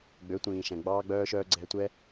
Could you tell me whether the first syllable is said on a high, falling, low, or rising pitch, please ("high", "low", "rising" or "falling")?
rising